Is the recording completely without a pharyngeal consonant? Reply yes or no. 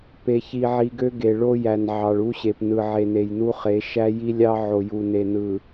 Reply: no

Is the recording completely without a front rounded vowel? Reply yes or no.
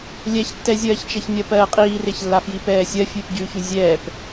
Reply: yes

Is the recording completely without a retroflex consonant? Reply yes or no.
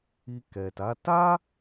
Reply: yes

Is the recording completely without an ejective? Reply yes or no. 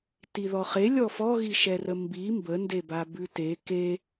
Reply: yes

